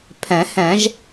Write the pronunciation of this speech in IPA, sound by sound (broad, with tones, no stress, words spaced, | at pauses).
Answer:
pʰɛ̃˨˩˦hɛ̃˨˩˦ʒ